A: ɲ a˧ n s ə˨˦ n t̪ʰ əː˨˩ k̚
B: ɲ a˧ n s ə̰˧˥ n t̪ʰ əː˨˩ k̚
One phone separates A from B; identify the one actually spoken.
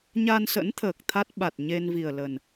B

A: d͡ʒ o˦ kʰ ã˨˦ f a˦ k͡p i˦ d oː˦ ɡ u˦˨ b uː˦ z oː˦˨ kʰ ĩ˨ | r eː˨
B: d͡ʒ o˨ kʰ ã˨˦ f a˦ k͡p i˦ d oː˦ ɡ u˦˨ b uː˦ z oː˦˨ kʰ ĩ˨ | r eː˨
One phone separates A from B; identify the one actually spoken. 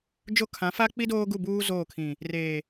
A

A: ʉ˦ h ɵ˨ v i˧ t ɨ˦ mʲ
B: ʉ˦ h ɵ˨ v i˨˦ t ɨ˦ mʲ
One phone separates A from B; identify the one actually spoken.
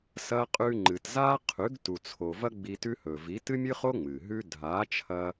B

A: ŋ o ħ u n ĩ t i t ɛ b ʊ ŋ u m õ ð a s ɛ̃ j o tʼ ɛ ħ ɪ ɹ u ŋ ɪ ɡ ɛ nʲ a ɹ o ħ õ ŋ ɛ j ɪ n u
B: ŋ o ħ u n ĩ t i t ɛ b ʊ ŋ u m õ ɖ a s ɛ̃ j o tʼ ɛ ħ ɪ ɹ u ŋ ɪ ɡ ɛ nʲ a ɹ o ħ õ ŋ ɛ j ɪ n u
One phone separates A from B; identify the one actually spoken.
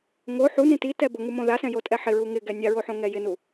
A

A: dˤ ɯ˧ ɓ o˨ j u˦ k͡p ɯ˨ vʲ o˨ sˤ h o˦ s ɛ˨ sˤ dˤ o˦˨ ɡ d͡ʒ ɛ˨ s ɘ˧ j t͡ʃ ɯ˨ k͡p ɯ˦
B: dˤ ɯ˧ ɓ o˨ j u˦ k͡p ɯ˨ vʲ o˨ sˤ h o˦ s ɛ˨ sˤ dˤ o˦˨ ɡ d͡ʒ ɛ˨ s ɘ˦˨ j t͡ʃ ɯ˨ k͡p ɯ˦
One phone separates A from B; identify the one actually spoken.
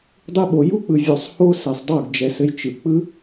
A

